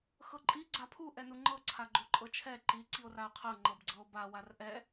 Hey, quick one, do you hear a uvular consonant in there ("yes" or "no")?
yes